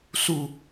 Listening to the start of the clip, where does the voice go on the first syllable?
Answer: falling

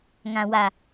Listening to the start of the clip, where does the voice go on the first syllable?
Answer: low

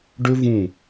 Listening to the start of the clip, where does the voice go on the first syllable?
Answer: high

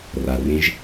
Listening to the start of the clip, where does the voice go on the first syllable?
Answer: low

